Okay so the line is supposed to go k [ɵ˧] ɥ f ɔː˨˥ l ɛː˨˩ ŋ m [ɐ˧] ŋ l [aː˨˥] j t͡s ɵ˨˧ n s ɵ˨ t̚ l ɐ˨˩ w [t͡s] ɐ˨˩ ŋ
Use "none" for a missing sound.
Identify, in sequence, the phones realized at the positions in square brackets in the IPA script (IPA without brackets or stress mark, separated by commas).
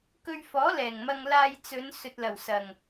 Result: ɵ˧, ɐ˧, aː˧, s